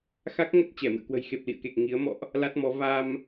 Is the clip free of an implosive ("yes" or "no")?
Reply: yes